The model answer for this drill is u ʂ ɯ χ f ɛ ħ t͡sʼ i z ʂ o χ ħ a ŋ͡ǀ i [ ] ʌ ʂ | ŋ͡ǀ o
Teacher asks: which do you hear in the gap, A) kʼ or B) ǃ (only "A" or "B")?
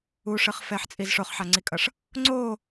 A